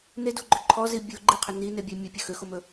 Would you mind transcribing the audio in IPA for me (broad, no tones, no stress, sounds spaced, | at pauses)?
n e d u ɡ͡ǃ ø ǃʰ ɔ z i bʲ o ɡ͡ǃ i qʰ ɵ n i n e bʲ ɛ mʲ ɵ pʲ ɵ x ø x o m ɵ